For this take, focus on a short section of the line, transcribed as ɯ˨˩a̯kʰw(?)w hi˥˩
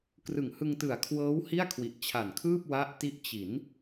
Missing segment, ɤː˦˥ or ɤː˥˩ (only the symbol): ɤː˦˥